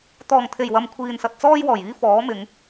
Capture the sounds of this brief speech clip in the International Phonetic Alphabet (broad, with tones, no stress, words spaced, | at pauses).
t̪ɔː˨˩ŋt̪ʰe˨˩jwɐ˨m kʷʰiː˨nsɐ˨t̚ t͡sɔː˧jwɔː˨˩jiː˧ fɔː˨˥mɪ˨˧ŋ